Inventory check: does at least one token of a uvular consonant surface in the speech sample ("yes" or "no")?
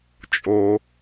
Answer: no